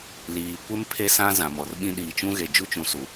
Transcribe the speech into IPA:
l iː˨ kʷ ɪ˦ m pʰ e˦ s ã˦ z ã˨ m ɔ˨ r ɓ ĩ˦ ɗ iː˨ t͡ʃ ũ˦ ɣ e˨ d͡ʒ u˦ t͡ʃ ũ˨ s u˨

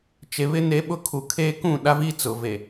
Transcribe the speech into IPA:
t͡ʃ e˨ β ɪ˦ n e˦ ɓ ʊ˦ kʰ u˨ kʰ eː˦ k ũ˦˨ ɗ a˦ v i˦ t͡s ʊ˨ v e˨

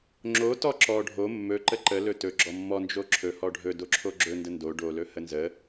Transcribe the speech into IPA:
ŋ͡ǁ o t ɔ ǁ ɔ ɖʱ o mː ɵ ǃ ə ǃ ə l ɵ t ɵ ɡ͡ǁ ɔ mː ɔ n d͡ʒ o ǁʰ ɵ h ɔ ɖʱ ɵ d o ǁʰ o ɡ͡ǁ ɵ n d ə n d o ɖ o l ɵ h ə n z ə

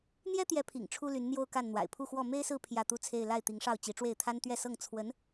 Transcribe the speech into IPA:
n̪ j ɛ˥ t̪ j ɛ˧˥ pʰ ḭ˨˩ ŋ ʈ͡ʂʰ u˥ l y˧˥ n n̪ j o˥˧ ʊ̯ k a˥˩ n n̪ w a̰˨˩ ɪ̯ pʰ u˥˧ x w ɔ˥˩ m e˥ ɪ̯ s ɹ̩˥˧ pʰ j ä˥˩ t̪ u˥ t͡sʰ e˥˧ ɪ̯ l a˥˩ ɪ̯ t̪ i˧˥ ŋ ʂ ɑ˥˩ ʊ̯ t͡ɕ i˧˥ ʈ͡ʂ w e˥˩ ɪ̯ t̪ʰ a˥ n t̪ ɥ ɛ˥˧ s ɤ˥˩ ŋ t͡sʰ w ə˧˥ n

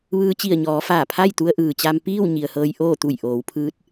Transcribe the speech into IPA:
ʋ ɯː˧ t͡ɕ i˧˩ ə̯ ɲ ɔː˩˧ f aː˧˩ pʰ a˥˨ j t̪ u˧ ə̯ ʔ ɯː˩ t͡ɕ a˧ m p iː˥˨ w ɲ i˩ ə̯ h ɤː˧ j ʔ oː˥˨ t̪ u˧˩ j ʔ oː˩˧ w pʰ ɯː˧˥ t̚

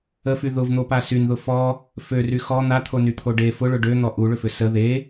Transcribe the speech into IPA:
ə f y ð ʊ v n̪ o p a s y n ð ʊ f ɔ | f ø r y x ɔ n̪ a t̪ʰ o n y t̪ʰ o ɖ e f ʊ ɭ ʊ ɖ ø n̪ ɔ ʔ u ɭ ʏ f ʏ s ə ð e

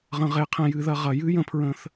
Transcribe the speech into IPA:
ʁ ə̃˨˩˦ ʁ e˨˩˦ qʰ ẽ˧ j ɨ˨˩˦ ð ɐ˧ ʁ ɐ˨˩˦ j ɨ˧˥˧ j ə̃˨˩˦ pʰ ɹ ə̃˨˩˦ θ

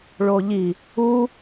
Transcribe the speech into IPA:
ɭ o ʎ i | u

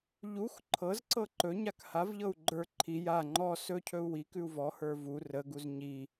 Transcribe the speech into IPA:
ʎ u x ǃʰ ɤ z ǀ ɤ ǃ ɵ ɲ a k h a v ʎ ɤ u̯ ɡ͡ǃ ə˞ ǃʰ i j a ŋ͡ǃ ɔ s ɵ cʰ ɵ u̯ w i k ʉ u̯ v ɔ h ə˞ v u r ə ɡ u z ɲ i

